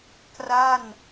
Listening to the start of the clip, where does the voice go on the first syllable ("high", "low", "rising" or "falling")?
falling